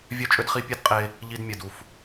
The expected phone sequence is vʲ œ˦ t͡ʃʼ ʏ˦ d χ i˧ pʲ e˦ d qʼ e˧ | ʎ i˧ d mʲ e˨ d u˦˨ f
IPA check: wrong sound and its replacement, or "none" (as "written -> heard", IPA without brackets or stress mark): none